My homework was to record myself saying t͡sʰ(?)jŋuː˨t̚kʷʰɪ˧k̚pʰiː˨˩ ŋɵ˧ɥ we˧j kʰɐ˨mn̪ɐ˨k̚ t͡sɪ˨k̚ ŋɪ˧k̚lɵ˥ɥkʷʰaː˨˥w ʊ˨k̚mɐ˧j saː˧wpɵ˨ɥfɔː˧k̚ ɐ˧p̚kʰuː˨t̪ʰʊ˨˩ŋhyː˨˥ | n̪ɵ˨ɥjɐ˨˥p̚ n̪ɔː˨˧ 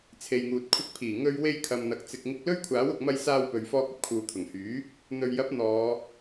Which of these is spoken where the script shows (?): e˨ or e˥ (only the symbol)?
e˨